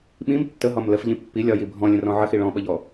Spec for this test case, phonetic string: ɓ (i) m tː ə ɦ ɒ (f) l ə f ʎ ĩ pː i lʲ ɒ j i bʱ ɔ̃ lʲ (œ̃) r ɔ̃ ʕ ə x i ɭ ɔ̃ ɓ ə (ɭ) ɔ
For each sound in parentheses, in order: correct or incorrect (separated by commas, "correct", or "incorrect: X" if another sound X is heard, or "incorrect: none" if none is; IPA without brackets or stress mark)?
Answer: incorrect: ĩ, incorrect: m, incorrect: ə̃, incorrect: ʎ